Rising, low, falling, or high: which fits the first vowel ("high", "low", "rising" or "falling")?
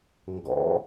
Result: rising